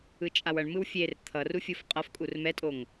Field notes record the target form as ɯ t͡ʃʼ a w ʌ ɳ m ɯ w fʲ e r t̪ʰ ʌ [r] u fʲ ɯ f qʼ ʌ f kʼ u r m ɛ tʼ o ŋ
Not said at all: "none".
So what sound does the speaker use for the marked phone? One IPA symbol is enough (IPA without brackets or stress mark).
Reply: r